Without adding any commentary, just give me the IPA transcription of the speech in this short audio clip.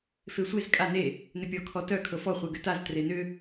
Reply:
f e sʷ e z kʼ a n e | n ʏ pʲ ɔ kʰ ɔ t œ kʰ ɤ f ɔ χʷ e ɡ ʏ t a z t r e n ʏ

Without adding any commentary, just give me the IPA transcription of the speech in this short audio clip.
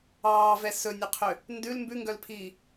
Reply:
ɑː v ɛ s ɵ nʲ ɵ qʰ ø | n d ʉ l m b ʉ ŋ ɡ œ l pʰ iː

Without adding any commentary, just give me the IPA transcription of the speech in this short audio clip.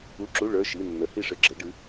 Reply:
u˧˥˧ ǁ u˧˥˧ ɭ ə˞˧˥˧ ʃ i˧˥˧ nː ə˨˥ h i˥˨ ʂ ɘ˧˥˧ ɡ͡ǁ ɘ˨˥ ɖ ɨ˨˥

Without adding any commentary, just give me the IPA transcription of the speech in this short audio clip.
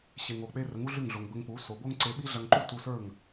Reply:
ɕ e˩ ŋ o˩ k͡p e˧ r ə˩˥ ŋ u˥ ɮ ʉ˥˩ ŋ ɮ o˩ ŋ b ə˧ ŋ k͡p u˩˥ s o˩ b o˥ ŋ ǀ e˧ ɓ i˥ ɮ ɐ˧ ŋ ǃ u˥ t u˧ s ə˞˥˩ ŋ

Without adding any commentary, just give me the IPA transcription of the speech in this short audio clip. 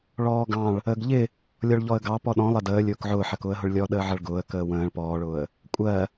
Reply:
ɭ ɔː ɡ ɑ̃ ɭ | əː ɡ ʎ ɪ | lʲ ɔ ɭ ʎ ɔ ə̯ ɡ ɑ p ɔ ɗ ɔ̃ lˠ ɜ d əː lʲ ʊː k ʕ ʊː ħ ɜ k ʊː ə̯ ɦ ʊ ɭ lʲ ɔ ɗ əː ʕ ʌ ɭ ɡ ʊː ə̯ k əː w ə̃ː ɭ p ɔː ɭ ʊː ə̯ | kʷʼ ɜ

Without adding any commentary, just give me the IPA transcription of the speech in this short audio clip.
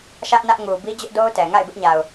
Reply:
ʃ ä˦ ʔ n ä˦ ʔ ŋ u˨ b i˦ d͡ʑ ʊ˦ ʔ d o˦ ʊ̯ t ɛ˨ ŋ a̰˦˨ ɪ̯ b ɪ˦ ʔ ɲ a˨ ʊ̯

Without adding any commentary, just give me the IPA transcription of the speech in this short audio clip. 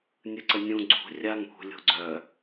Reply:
nʲ ɯ ǀ ə nʲ ũ ɡ͡ǀ ṳ rʲ a ŋ ṳ lʲ o̤ ɡ͡ǀ œ

